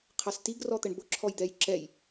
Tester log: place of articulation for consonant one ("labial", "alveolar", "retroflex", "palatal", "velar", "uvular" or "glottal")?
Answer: uvular